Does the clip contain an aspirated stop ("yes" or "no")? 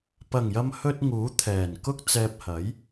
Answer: yes